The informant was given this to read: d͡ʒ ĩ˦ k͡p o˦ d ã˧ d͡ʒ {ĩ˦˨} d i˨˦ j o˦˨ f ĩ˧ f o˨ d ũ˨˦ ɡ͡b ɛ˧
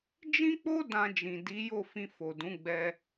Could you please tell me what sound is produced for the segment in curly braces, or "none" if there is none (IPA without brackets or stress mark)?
ĩ˨